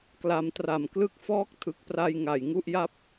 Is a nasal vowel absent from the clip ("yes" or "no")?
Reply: yes